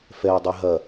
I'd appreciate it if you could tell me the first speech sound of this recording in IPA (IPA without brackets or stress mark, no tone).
f